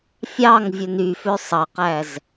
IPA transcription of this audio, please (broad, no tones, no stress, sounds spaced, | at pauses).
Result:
fʲ ɑ ŋ vʲ ɵ n y f ø sˤ ɑ q æ z